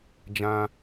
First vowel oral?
no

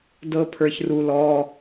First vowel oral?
yes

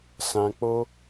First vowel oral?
no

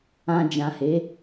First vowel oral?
no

